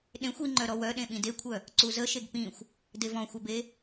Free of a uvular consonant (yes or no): yes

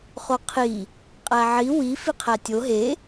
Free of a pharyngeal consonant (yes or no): no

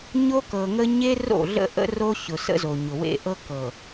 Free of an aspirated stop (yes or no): yes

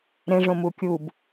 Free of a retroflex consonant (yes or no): no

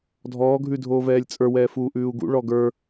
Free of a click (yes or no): yes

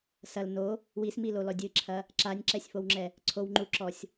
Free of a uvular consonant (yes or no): yes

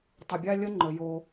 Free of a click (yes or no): no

